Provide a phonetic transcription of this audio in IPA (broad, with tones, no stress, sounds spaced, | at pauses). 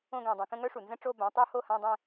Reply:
õ˥˧ ɡ ɛ̃˧˩ dˤ ɛ̃˧˩ k ə̃˥˧ ŋ œ˦˥ ʂ u˩ n z ə̃˥˧ ʈ͡ʂ o˥˧ b ã˨˥ tˤ o˦˥ h o˥˧ h ã˧˥˧ dˤ ɛ̃˥˧